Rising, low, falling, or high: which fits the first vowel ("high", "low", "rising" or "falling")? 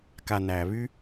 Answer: low